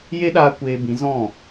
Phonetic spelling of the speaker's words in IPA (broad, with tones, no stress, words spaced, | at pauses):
je˦ɗaː˧ kʷeː˧ bĩ˨˦zɔ̃˦˨